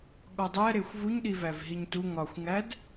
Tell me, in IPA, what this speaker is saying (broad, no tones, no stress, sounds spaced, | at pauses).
ɠ ɒ dˤ æ ɾ e xʷ v u ɲ ɗ i v æ v ɦ i ɲ t u ŋ ɒ xʷ ŋ æ d